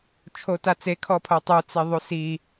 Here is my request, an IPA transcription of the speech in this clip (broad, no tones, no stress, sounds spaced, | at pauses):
t͡ʃʰ o t a t͡s e kʰ ɔ pʰ o tˤ u t͡s e ðˤ u s i